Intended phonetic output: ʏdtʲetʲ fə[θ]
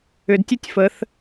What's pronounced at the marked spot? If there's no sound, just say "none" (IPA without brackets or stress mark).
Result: θ